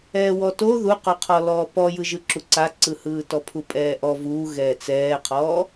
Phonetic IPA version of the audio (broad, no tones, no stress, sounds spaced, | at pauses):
ɛː w ɔ t o ð u q o qʰ ɔ l ɔː p ɔ j ɯ ʒ ɯ ǁ u ǀ a ǀ ɯ h ɯː t ɔ pʰ u pʼ ɛː ʔ ɔ v uː ɣ ɛː t͡s ɛː qʰ ɔː